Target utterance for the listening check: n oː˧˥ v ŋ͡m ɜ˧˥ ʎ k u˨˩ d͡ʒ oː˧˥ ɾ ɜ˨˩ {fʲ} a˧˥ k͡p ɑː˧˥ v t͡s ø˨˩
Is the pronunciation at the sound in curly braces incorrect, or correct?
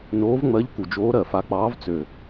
incorrect